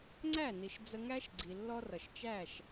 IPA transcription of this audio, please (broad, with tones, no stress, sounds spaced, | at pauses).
ŋ͡ǀ æ˦˨ n i˨ ʃ d͡z ə˧ ŋ æ˦ ʃ ɡ͡ǀ i˨ lː ɔ˦ r ʌ˨ ʃ t͡ʃ æ˦˨ ʃ